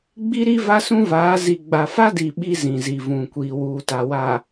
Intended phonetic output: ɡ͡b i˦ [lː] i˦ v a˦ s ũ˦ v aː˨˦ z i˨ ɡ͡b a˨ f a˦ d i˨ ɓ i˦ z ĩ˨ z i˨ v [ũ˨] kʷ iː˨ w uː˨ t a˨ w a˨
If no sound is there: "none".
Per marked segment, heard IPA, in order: ɾ, ũ˨

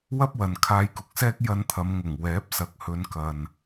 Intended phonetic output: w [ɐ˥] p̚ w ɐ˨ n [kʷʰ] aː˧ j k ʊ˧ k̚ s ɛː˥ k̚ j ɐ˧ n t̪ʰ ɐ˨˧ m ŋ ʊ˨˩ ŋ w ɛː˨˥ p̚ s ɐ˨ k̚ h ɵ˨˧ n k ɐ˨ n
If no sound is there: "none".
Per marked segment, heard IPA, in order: ɐ˥, kʰ

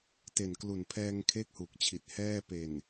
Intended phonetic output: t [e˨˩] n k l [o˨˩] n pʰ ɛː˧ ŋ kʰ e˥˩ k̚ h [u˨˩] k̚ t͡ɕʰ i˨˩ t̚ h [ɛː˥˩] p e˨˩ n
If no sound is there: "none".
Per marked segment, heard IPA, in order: e˨˩, u˨˩, u˨˩, ɛː˥˩

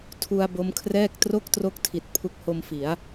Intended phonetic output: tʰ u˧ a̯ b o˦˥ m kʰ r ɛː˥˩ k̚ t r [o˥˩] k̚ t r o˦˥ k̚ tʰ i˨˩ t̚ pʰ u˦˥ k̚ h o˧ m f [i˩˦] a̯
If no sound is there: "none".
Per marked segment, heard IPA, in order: o˥˩, i˩˦

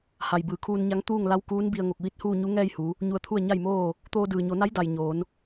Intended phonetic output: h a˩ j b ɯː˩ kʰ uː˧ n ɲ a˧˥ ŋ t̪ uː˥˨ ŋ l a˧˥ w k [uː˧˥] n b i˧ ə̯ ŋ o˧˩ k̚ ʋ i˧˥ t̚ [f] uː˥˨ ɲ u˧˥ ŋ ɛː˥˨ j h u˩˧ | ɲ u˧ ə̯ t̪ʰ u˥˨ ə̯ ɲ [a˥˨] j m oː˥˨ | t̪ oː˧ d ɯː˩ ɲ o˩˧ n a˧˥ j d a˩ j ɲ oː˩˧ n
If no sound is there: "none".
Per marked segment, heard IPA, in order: uː˧˥, h, a˥˨

